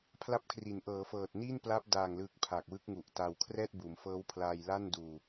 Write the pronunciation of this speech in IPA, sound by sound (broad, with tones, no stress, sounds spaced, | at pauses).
pʰ l a˦˥ p̚ kʰ r i˩˦ n ʔ ɤː˩˦ f ɤː˨˩ t̚ n i˥˩ n p l a˦˥ p̚ d aː˨˩ ŋ l ɯː˨˩ k̚ pʰ aː˨˩ k̚ w ɯ˦˥ k̚ ŋ u˨˩ ʔ t a˧ w kʰ r ɛː˥˩ t̚ b uː˩˦ m f ɤː˦˥ w pʰ l aː˧ j l a˥˩ n d uː˧